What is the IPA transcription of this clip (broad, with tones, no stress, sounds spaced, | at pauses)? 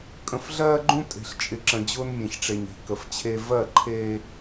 kʼ ə̃˨ f ɮ ɜː˦ ɡ͡ǃ ũ˦ tʼ e̤˨ ɬ t͡ʃʼ ɪ˨ ǁ ə̃˨ d͡ʑ ʊː˦ n mʲ ẽ˨ ç ʈ͡ʂ e˨ ɲ e̤˨ k ə˨ f t͡ɕʰ e˦ v ɜ˦˨ ǃʰ eː˦